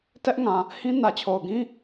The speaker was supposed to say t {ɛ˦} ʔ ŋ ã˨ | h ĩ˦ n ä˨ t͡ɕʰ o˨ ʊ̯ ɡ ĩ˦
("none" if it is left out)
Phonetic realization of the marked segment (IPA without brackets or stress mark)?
ɛ˦